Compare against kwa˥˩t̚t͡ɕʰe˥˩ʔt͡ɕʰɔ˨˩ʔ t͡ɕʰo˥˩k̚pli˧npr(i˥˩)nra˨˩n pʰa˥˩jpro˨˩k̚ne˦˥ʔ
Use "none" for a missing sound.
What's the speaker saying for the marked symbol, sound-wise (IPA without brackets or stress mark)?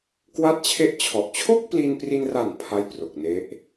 i˧